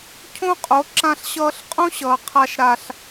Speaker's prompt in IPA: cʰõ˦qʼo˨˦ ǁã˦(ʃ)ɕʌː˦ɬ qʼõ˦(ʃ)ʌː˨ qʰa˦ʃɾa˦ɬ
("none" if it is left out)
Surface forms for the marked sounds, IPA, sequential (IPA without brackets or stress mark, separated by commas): ɬ, ɕ